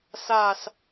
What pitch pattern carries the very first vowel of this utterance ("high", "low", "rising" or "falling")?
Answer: falling